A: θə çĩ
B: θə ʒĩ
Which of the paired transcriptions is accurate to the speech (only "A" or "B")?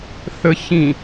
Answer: A